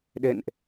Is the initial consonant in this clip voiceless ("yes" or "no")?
no